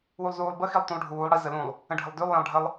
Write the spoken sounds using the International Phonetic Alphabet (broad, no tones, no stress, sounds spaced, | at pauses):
w u lˠ z uː lˠ b ə x i lˠ t ũ lˠ ɖʱ uː lˠ ɽ i z ə l ũ lˠ | ə̃ ɖʱ ə lˠ d ʉ lˠ j ɛ̃ lˠ ɖʱ ə lˠ